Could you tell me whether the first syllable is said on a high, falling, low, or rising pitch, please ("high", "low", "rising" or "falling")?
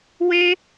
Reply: high